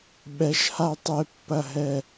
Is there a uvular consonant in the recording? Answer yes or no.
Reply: no